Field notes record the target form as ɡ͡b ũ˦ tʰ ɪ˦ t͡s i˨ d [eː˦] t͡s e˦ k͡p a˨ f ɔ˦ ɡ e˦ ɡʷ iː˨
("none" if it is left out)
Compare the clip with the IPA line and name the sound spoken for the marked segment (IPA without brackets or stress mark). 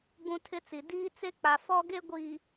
iː˦